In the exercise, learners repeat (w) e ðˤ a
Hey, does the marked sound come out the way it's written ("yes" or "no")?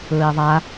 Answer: no